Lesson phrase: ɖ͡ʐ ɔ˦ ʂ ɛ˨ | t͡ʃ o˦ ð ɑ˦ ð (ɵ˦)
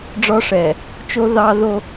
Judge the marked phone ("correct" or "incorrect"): incorrect